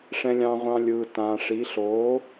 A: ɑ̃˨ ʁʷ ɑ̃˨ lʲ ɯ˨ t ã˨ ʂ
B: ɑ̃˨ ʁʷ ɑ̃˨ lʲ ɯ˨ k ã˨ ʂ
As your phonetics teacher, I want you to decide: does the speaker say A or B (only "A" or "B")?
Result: A